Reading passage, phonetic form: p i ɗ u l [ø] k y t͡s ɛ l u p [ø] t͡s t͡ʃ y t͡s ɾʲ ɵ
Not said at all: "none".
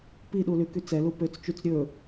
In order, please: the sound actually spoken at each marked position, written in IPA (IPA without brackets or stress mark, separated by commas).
y, ø